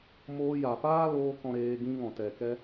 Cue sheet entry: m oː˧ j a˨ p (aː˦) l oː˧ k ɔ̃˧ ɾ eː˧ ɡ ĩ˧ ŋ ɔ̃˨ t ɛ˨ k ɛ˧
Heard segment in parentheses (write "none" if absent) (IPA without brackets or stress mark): aː˦